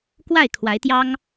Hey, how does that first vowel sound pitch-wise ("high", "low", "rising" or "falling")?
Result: falling